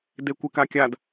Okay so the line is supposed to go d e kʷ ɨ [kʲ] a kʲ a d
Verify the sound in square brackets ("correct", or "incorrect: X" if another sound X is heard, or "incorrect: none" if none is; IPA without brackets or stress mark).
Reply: incorrect: k